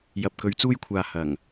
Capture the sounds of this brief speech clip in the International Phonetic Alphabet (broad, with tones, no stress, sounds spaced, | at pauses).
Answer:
j ɐ˨ p̚ k ɵ˨˧ ɥ t͡s uː˧ j kʷʰ aː˨ h ɐ˨˩ ŋ